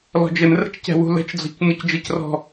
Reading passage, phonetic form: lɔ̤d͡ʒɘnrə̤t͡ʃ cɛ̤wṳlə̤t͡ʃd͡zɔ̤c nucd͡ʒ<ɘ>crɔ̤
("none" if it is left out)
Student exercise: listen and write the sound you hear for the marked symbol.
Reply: ɘ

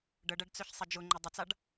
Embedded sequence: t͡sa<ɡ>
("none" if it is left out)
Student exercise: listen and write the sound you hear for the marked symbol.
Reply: ɖ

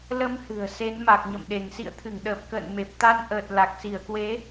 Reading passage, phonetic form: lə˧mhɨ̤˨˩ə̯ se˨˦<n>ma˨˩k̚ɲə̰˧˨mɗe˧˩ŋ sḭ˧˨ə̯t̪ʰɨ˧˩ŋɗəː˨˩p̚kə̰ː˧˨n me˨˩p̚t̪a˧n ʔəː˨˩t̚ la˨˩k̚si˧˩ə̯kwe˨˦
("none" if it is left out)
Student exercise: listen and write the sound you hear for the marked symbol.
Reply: n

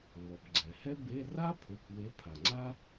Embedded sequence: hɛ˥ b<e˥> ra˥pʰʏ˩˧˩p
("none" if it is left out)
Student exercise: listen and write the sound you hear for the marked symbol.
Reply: e˧˥˧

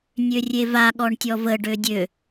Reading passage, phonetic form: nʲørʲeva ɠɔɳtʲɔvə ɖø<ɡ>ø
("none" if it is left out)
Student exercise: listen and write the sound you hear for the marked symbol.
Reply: dʲ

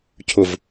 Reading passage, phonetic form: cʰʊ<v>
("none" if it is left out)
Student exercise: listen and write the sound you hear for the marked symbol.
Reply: v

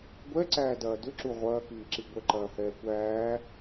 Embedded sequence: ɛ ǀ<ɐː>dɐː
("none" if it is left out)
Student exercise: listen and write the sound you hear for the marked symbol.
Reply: æː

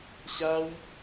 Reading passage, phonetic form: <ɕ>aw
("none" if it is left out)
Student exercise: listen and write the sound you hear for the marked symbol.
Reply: ɕ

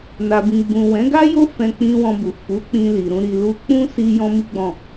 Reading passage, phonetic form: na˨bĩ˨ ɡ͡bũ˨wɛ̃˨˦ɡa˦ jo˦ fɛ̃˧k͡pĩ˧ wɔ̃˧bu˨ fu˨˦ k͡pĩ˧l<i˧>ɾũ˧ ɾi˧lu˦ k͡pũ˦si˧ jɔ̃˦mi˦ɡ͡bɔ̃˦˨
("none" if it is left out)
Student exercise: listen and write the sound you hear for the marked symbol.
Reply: i˨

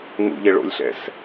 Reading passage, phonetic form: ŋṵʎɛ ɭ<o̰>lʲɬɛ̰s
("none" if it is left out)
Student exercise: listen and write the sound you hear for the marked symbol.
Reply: o̰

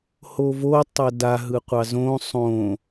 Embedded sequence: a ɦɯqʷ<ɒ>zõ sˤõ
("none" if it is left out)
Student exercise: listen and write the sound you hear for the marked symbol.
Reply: ɑ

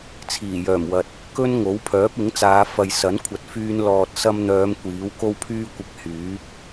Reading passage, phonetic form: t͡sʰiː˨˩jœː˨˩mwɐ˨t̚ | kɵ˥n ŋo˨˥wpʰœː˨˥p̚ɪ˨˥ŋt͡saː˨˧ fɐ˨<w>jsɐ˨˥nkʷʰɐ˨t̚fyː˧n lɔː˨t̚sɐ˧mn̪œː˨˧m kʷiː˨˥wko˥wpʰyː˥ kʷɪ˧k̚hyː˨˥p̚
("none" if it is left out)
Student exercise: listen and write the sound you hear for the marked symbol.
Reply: none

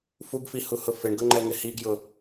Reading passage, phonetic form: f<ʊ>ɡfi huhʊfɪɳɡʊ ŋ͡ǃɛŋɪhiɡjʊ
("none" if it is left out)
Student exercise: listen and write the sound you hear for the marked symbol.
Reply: u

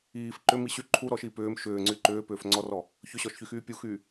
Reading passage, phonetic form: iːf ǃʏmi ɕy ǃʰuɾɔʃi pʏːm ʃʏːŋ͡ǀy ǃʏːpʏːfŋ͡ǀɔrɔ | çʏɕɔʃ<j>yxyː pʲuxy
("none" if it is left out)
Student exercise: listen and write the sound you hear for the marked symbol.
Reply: ç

